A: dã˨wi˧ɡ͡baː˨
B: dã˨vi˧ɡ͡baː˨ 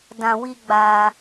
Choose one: A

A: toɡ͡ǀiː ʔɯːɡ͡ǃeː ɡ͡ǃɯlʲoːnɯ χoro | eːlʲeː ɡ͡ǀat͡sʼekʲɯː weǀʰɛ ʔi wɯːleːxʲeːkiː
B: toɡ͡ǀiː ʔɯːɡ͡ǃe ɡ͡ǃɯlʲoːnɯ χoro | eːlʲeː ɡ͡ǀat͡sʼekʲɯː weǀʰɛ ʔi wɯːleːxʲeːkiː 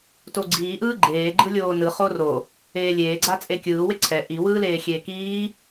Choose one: A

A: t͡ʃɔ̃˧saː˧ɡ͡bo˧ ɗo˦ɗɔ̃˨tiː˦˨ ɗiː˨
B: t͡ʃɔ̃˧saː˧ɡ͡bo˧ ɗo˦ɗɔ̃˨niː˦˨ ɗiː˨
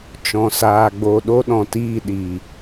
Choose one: A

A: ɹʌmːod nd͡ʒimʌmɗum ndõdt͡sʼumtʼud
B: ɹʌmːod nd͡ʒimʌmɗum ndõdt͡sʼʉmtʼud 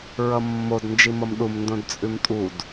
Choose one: B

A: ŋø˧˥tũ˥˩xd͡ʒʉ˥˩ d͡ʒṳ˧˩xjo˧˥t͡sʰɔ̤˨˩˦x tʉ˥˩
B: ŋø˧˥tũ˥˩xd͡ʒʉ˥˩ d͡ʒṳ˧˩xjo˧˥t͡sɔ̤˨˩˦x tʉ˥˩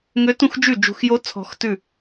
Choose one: A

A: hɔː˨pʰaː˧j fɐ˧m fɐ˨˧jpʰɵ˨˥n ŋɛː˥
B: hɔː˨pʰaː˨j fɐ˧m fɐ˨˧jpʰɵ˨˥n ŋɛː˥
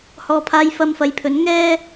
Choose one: A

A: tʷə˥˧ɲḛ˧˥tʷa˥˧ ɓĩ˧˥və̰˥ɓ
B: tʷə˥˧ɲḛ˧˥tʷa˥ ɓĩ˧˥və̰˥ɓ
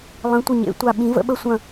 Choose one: A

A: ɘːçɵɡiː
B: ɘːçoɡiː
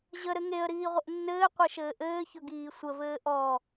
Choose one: A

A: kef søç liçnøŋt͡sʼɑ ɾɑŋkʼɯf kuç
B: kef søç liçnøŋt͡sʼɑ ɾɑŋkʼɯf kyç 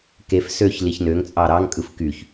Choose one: B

